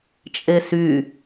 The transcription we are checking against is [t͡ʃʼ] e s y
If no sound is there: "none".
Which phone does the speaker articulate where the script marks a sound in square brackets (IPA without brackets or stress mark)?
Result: t͡ʃʼ